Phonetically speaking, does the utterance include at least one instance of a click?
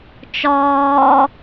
no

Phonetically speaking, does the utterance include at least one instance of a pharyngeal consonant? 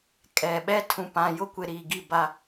no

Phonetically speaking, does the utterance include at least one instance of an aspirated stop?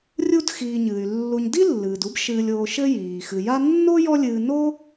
no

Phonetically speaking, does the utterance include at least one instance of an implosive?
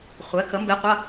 no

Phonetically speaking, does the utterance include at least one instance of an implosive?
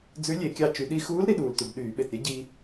yes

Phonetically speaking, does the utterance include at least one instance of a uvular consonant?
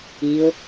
no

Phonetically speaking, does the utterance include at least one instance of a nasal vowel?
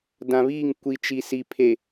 yes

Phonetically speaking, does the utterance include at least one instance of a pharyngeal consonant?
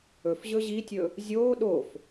no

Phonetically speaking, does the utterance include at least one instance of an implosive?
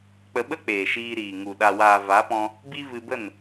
yes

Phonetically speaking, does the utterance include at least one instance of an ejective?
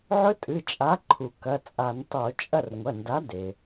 yes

